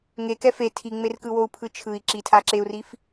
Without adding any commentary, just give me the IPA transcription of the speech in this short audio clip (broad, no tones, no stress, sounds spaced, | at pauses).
ŋ e k ɛ f e tʰ i ŋ͡m e r k ɯ w o u̯ pʰ ɯ t͡ʃʰ ɯ i̯ ǁ i tʰ a ǁ e u̯ r i f